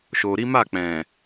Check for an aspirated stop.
absent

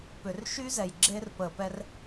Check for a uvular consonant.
absent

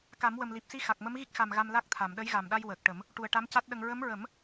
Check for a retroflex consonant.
present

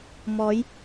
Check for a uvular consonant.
absent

